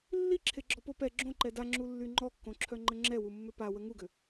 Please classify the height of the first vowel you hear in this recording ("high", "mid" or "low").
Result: high